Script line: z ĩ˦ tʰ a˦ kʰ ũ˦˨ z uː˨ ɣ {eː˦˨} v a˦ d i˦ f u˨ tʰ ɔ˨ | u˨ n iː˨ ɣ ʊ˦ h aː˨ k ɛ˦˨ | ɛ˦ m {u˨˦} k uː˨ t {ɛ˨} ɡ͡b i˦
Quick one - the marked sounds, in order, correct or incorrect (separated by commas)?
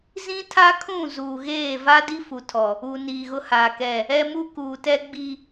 correct, incorrect, incorrect